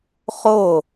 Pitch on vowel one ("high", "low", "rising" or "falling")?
falling